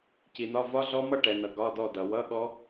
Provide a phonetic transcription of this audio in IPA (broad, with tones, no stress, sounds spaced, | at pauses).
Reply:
c i˨ n̪ ɒ˧˥˧ v ɒ˦˥ ɮ ɔ˦˥ m ʌ˥˨ ʈ ɛ˨ n ʌ˨ ɡ ɒ˧˥˧ d ɔ˥˨ d ʌ˨ w ʌ˧˥˧ ɠ ɔ˦˥